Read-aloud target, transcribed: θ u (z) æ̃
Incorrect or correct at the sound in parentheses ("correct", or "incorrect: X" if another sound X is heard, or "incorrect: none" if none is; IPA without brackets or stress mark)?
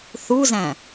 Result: correct